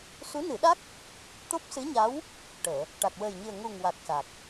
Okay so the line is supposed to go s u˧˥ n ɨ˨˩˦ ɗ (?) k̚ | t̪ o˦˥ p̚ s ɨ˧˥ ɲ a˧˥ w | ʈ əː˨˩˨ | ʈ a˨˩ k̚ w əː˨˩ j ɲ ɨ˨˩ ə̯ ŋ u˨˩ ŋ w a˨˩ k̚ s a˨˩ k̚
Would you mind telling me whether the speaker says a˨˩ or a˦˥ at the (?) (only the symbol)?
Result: a˦˥